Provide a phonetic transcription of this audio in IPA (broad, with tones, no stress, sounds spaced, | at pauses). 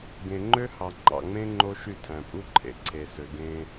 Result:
ɡ ẽ˨ ŋ͡ǃ ø˦ h ɑ˨ ŋ͡ǃ ɑ̰˨ ŋ͡m ẽ˦ ŋ͡ǃ o˦ ʃ y˦˨ tʰ æ̃˨ pʼ u˦ ǃʰ ḛ˨ ǀʰ e˨ s ø˨ ɡ ẽ˦